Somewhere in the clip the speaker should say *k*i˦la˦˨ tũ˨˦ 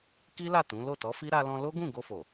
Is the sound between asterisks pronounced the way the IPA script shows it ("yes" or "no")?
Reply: yes